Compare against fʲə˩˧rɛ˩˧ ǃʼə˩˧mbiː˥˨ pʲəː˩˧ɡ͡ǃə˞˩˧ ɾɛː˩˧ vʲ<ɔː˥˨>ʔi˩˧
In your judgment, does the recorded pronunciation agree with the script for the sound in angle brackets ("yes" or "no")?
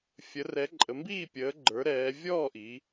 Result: yes